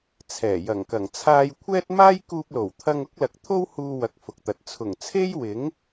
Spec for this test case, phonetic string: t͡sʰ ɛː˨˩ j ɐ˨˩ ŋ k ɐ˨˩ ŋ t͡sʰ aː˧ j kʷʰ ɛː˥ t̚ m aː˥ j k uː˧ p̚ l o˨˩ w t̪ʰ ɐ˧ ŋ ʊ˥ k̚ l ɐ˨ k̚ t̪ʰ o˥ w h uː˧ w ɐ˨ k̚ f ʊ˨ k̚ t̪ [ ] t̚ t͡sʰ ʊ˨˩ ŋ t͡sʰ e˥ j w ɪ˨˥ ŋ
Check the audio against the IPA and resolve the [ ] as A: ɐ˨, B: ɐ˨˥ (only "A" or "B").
A